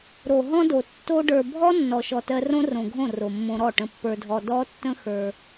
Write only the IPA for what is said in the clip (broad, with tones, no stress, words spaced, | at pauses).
ɾo˨ɦɔ̃˦do˨ tːo˧ɖə˞˨bʱɔ˦ nːɔ˨ʃɔ˨ tɜ˧rõ˦ rõ˨ɡʱõ˦˨ ro˨mːõ˧ɾɔ˦˨ ʈə̃˧pːə˞˧dʱɔ˧ dɔ˦ tːə̃˦xə˞˧